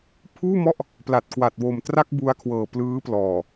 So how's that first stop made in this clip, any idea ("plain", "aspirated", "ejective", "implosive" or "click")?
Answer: aspirated